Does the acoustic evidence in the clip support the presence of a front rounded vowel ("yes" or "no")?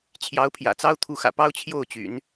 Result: yes